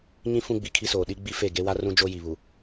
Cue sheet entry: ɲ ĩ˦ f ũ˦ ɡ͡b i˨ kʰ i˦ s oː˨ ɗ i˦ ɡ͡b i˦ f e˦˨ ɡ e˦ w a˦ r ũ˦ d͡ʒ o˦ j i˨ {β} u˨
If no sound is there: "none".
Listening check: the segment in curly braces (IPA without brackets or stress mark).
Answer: β